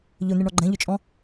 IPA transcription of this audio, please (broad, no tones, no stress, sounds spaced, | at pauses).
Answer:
ʎ ɵ n̪ e ɳ ɔ ɡ͡ǃ ɛ̃ ʎ ʏ t͡ʃʼ ɔ̃